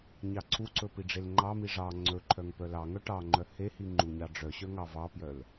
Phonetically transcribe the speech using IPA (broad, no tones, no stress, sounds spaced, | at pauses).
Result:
ɲ ɑ ǀʰ u ǀ ɵ p i ɖ͡ʐ e l ŋ͡ǃ ɑ m i ʐ ɑ ŋ͡ǀ ɵ ǃʰ œ ŋ p œ l ɑ ŋ œ ʈ ɑ ŋ͡ǃ œ h e h i ŋ͡ǃ u ɲ ɑ ɖ͡ʐ œ ɕ œ ŋ ɑ v ɑ p j œ l